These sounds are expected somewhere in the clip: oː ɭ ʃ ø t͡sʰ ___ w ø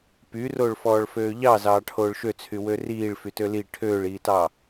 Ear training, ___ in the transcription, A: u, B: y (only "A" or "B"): B